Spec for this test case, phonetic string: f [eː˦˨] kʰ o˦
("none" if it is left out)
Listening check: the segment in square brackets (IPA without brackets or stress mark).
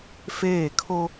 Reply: eː˦˨